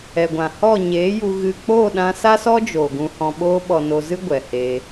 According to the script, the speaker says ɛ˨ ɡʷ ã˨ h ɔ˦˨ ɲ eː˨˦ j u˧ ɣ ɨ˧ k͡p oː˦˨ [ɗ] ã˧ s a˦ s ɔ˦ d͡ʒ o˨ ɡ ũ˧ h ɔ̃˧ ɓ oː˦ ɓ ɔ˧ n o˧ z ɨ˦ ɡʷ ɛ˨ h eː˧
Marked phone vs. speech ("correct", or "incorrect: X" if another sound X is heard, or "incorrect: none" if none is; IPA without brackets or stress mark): correct